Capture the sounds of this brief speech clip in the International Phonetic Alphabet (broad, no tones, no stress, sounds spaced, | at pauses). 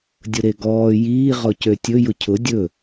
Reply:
dʲ ʊ ɾ e ɡ ɔː j iː ʁ ɔ c ø tʲ ɵ j ʊ cʰ ʊ dʲ ɵ